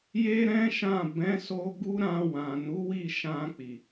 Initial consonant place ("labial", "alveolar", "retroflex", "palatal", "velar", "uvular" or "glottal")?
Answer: palatal